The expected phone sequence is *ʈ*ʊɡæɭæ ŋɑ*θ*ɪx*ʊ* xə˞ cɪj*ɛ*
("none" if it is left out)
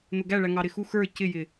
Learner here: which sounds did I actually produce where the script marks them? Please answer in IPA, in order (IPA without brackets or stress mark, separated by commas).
n̪, ɾ, u, ɪ